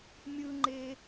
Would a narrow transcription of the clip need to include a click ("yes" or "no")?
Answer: yes